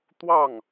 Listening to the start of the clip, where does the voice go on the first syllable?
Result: falling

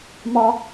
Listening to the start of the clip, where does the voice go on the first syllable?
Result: high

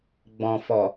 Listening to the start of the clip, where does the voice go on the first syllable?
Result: low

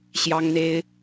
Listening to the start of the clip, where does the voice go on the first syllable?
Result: high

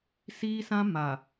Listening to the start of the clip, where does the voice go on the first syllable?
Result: high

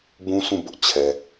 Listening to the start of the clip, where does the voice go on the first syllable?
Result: high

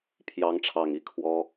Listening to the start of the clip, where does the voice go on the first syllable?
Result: rising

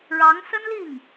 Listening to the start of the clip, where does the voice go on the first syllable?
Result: rising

